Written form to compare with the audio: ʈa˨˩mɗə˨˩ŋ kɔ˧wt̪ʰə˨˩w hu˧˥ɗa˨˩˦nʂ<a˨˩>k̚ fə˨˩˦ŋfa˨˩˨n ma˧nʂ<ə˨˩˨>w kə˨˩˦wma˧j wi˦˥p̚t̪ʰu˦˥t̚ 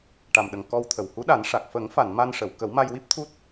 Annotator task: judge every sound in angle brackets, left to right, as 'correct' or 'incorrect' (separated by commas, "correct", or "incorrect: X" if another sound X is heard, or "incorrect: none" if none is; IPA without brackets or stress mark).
correct, correct